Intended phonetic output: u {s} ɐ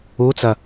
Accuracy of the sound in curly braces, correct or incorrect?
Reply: incorrect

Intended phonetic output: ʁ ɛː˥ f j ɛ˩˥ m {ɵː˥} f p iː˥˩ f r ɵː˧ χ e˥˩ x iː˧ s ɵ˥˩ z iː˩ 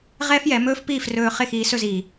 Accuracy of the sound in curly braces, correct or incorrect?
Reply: correct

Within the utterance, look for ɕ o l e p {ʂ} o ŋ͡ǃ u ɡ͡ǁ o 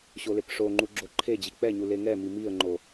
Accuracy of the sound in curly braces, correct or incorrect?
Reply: correct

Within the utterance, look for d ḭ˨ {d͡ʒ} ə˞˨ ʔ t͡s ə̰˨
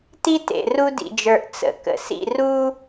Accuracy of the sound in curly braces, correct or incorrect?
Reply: correct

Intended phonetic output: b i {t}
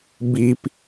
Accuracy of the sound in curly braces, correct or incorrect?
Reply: incorrect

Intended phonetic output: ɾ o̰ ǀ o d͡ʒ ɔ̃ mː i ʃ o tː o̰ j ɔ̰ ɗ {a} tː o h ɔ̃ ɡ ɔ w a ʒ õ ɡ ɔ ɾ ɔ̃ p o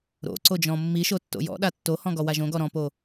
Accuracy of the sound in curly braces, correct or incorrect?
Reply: correct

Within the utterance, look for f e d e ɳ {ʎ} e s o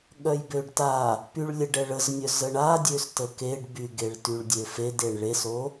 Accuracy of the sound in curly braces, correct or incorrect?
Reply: incorrect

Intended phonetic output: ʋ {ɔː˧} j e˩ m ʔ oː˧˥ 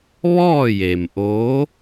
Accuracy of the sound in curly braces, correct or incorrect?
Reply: incorrect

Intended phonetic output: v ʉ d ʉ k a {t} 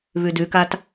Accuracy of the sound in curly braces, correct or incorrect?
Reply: correct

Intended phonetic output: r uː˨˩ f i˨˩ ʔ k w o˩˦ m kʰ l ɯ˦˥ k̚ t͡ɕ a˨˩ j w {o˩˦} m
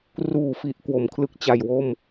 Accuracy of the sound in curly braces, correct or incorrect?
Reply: incorrect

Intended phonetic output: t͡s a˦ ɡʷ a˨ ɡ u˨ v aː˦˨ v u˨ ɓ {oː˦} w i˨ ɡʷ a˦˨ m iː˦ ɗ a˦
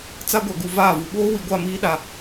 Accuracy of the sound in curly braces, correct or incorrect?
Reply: correct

